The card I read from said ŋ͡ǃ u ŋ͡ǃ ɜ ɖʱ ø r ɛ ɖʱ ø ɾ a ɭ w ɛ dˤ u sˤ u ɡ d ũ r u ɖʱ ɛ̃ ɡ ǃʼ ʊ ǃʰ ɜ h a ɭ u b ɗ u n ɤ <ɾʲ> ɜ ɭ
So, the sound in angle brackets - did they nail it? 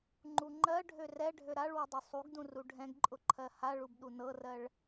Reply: no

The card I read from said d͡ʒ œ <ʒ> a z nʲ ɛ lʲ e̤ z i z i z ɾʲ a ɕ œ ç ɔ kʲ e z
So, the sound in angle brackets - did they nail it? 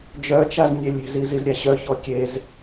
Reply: no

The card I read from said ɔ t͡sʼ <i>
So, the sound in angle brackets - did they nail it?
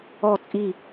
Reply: yes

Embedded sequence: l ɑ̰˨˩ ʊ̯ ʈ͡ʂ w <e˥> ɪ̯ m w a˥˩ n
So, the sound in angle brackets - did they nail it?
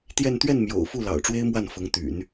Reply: yes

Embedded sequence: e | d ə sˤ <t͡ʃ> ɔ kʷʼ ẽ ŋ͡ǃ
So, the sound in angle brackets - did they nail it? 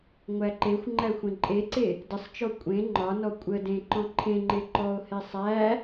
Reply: yes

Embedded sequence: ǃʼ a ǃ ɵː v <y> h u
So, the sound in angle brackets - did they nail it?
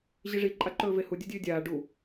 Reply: no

